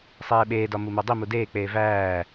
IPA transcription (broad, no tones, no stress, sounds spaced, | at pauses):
sˤ eː ɓ eː d ɒ m u m o dˤ i m u d eː k͡p eː v æː